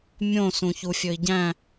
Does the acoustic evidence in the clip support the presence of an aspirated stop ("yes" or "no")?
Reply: no